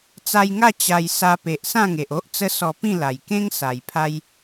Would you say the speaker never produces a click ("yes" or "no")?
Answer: yes